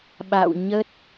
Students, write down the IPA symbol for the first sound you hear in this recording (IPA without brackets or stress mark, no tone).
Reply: ɓ